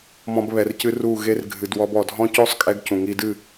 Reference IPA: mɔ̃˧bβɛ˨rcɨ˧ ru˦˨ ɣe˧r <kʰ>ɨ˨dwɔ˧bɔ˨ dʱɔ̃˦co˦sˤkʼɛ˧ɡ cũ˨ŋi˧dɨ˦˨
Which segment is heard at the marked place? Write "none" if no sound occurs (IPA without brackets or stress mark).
ɡʱ